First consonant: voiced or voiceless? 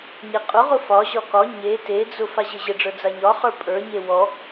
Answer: voiced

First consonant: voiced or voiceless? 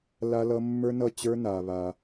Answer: voiced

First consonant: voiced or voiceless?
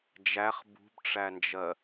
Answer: voiced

